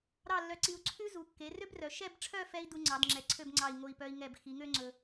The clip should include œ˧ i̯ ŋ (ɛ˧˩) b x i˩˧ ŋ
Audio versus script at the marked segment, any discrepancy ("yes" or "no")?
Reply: no